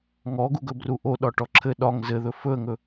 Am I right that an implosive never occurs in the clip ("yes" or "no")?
no